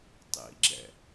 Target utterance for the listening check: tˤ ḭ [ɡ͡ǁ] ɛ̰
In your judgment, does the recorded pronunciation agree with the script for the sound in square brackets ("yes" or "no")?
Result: yes